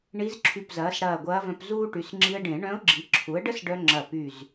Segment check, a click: present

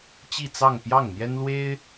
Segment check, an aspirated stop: absent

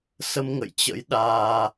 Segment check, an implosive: present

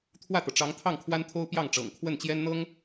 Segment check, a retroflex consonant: present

